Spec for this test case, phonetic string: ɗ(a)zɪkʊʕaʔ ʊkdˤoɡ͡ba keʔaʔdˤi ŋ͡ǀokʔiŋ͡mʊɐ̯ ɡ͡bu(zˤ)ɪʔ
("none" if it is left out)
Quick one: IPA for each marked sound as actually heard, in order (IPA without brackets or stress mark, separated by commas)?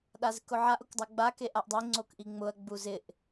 a, z